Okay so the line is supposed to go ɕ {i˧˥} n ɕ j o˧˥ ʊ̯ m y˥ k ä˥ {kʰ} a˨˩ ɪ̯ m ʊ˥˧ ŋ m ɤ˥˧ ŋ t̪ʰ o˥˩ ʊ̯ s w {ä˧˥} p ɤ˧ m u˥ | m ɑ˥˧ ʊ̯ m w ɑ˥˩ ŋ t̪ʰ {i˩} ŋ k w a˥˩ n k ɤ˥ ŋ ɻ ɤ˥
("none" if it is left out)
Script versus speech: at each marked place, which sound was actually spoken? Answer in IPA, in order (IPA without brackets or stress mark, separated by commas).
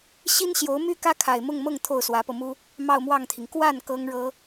i˥, kʰ, ä˧˥, i˩